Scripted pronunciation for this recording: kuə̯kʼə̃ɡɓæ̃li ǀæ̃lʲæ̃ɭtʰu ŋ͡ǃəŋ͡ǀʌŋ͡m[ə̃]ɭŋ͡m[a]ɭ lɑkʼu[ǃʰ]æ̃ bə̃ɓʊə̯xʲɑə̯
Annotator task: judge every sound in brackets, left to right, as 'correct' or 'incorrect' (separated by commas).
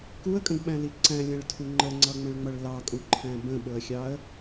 correct, incorrect, correct